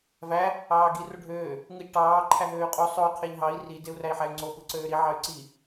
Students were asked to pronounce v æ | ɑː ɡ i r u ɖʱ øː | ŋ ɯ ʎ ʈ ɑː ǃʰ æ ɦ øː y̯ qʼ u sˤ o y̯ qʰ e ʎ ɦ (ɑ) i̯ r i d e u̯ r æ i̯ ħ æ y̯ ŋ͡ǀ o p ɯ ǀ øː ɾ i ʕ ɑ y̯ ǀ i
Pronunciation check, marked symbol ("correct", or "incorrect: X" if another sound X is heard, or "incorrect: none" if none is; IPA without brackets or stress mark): correct